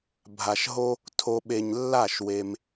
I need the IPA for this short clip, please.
bʱ a˨ ʃ ɦ o˧ | tʰ o˧ ɓ e˨ ɲ lː a˦˨ ʃ w e˧ m

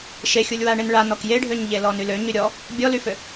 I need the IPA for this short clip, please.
ʃ e xʲ u lʲ w a ɳ e n ɭ a n ɔ k j e ɖʱ ø ɲ ʎ e l ɔ n y l ø ɲ y ɾʲ ɔ | bʲ ɔ l y f ø

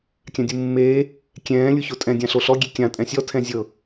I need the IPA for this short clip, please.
kʲ ã dʲ u mː eː | kʲ ɛ̃ː lʲ u ç o tʼ ɛ̃ dʲ ã ɬ o ɬ ɔ ɡʲ e kʲ ã tʼ ɛ̃ sʲ ɔ tʰ ɛ̃ zʲ ɤ

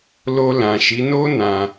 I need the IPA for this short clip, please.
l o˧ l ã˨ ʃ i˨˦ n o˦ n ã˧

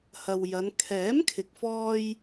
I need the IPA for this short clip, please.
h ɐ˨ w j ɐ˨˧ n kʰ ɛː˨˥ m kʰ ɪ˨ k̚ f ɔː˧ j

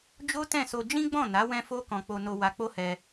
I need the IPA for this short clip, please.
d͡ʒ o˦ t ɛ̃˦˨ s o˧ d͡ʒ ĩ˦ ɡ͡b ɔ̃˦˨ n a˨˦ w ɛ̃˦ f o˦ k ɔ̃˧ k͡p o˧ n o˧ w a˧ k͡p o˦ h ɛ˧

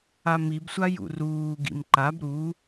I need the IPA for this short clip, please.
a m i b sʷ a j ṵ r uː ɡ ḭ m ǃ a b ɾ u

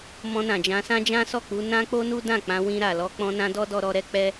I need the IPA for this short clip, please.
m ɔ̃˧ n ã˨ d͡ʒ ã˧ s ã˦ d͡ʒ ã˦ s ɔ˦˨ k͡p u˧ n ã˦ k͡p o˦ n u˦ d ã˦˨ k͡p ã˧ w ĩ˧ ɾ a˨ l ɔ˧ k͡p ɔ̃˧ n ã˧ d ɔ˦ d ɔ˧ ɾ ɔ˧ ɾ ɛ˦ k͡p ɛ˦

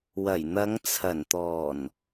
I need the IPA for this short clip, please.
w ɐ˨˩ j n̪ ɐ˨˧ ŋ t͡sʰ ɐ˨˩ n t̪ ɔː˨˩ n

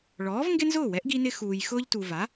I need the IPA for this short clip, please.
ɭ ɔː˩˥ v ŋ ɡ ɪ˥ n z ʊː˥˩ w ɛ˩˥ ʔ ɡ i˧ n ɪ˧ x uː˩ j x ʊː˧ ʎ t u˩ v a˩˥

